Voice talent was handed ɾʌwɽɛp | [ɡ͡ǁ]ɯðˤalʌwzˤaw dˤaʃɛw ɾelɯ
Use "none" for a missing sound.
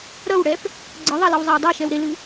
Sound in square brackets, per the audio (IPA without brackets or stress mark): ɡ͡ǀ